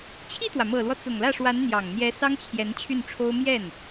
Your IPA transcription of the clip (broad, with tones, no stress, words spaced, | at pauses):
t͡ɕʰi˥˩t̪wä˩mɤ˨˩lwɔ˦ t͡sʊ˨˩ŋlä˥˩ ʂwa˧˥nn̪jɑ˨˩ŋn̪jɛ˧˥ sɑ˥ŋt͡ɕʰjɛ˧˥n t͡ɕʰy˥˩nʈ͡ʂʰo˥ʊ̯ mjɛ˥˩n